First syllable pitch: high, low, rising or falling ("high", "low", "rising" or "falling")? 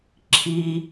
high